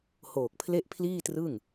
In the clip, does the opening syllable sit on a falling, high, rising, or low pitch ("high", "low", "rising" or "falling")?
low